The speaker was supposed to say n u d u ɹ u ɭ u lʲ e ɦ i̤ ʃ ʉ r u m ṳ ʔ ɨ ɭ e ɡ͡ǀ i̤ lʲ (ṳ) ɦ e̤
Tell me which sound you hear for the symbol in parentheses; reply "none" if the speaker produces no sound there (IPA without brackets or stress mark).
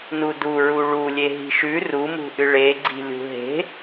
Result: ṳ